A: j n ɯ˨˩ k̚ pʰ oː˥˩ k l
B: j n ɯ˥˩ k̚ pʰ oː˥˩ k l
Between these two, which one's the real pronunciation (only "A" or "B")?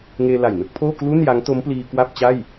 B